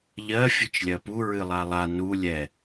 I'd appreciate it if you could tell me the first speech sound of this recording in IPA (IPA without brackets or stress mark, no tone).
ʎ